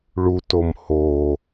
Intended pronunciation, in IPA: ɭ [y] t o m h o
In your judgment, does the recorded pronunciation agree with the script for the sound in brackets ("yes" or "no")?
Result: no